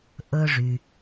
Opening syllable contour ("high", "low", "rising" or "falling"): high